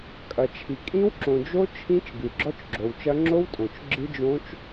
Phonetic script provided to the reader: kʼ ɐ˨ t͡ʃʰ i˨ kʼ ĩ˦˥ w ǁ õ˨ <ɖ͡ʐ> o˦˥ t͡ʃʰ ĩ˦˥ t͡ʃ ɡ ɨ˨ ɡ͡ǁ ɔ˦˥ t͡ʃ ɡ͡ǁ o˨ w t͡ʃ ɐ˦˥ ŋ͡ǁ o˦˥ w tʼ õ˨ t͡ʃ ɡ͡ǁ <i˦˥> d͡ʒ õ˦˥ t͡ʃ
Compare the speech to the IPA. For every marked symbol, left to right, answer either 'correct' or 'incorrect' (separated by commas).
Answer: incorrect, incorrect